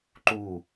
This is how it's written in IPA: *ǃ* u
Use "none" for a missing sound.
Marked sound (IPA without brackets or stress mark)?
ǃ